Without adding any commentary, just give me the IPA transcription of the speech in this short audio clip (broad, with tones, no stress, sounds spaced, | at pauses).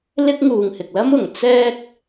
l ɪ˥ k̚ ŋ uː˨ ŋ h ɪ˨ k̚ l ɐ˥ m ʊ˨˩ ŋ t͡s ɛː˥ k̚